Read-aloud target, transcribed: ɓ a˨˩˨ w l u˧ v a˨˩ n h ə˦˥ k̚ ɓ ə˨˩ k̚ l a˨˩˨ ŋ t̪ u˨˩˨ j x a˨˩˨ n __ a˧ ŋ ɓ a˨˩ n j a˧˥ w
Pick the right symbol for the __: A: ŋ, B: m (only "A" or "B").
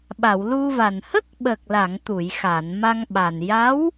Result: B